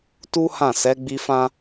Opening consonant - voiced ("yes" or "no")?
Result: no